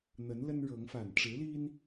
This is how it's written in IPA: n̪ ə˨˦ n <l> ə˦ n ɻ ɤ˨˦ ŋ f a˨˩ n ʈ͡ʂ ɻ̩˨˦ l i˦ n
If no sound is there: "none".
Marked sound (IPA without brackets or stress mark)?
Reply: l